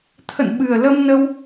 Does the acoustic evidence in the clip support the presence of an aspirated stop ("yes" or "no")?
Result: yes